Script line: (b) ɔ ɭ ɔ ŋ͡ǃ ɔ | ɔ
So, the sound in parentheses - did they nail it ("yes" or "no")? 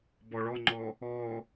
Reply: yes